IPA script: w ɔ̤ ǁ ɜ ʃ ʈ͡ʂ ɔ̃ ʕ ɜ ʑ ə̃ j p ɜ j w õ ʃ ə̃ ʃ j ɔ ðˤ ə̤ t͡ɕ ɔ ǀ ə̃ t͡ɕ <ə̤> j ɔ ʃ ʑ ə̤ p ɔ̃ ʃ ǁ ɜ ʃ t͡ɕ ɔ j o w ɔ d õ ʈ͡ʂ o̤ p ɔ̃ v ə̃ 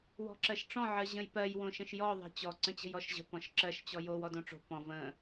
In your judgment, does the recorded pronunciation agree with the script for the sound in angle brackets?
yes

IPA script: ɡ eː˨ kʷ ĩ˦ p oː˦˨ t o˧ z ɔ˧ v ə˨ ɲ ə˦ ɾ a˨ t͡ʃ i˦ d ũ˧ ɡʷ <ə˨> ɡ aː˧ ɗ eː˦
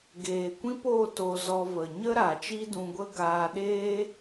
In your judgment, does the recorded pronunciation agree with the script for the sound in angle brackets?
no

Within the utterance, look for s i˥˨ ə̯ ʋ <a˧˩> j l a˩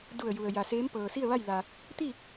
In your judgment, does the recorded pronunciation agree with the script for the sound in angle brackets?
no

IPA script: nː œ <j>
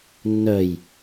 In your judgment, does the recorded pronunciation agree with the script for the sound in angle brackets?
yes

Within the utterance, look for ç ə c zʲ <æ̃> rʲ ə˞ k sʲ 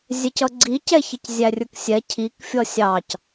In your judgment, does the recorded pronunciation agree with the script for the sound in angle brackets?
no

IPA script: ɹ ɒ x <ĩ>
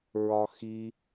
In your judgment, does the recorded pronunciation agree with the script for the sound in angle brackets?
no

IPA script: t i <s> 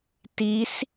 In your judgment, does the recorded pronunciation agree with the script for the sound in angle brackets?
yes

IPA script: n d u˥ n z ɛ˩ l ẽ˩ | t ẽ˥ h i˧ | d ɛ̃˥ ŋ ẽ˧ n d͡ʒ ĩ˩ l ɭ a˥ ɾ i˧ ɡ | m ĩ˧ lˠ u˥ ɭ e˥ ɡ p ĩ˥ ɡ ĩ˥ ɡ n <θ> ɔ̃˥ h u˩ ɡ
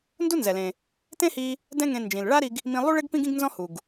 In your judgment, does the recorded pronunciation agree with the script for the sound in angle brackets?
no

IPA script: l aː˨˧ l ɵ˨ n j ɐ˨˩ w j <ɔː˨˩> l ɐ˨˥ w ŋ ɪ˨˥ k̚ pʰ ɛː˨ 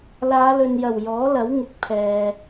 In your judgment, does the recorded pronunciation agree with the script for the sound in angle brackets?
no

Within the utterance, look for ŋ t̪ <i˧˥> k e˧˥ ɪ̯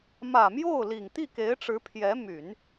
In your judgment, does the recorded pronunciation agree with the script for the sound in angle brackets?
no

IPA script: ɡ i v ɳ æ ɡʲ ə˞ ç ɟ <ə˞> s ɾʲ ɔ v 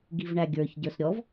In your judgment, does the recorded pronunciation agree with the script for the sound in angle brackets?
yes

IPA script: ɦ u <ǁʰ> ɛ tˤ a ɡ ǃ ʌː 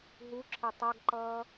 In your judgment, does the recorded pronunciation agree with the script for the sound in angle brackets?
yes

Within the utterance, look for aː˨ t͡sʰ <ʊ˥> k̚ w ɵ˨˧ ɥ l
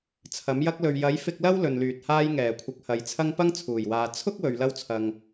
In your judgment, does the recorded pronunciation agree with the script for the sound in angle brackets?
yes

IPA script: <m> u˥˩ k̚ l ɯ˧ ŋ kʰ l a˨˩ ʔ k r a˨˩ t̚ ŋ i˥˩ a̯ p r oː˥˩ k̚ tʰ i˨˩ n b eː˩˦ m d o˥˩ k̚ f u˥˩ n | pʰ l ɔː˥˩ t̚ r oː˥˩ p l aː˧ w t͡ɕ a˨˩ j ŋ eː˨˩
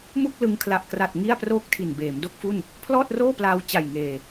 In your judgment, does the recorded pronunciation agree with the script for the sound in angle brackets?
yes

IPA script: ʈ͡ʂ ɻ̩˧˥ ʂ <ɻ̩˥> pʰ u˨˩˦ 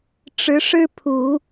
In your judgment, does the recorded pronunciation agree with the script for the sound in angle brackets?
yes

